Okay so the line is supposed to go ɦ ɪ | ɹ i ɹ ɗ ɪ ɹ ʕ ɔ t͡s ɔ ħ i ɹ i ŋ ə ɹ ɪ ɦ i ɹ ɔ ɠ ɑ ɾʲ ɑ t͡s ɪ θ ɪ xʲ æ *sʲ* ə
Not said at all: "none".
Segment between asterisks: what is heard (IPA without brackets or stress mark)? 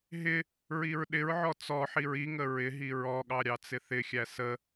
s